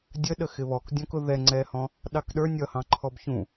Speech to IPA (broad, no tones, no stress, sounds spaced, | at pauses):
dʲ ə ɗ ə x ɪ β ɔ k dʲ ɔ̃ k ʊ ð ɛ ŋ͡ǀ ɛ h ɔ̃ | ɗ ɑ k ɗ ə˞ nʲ ʌ h ɑ̃ ǃʰ ɔ b ç ũ